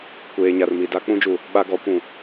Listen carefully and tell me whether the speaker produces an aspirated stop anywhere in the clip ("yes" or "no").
no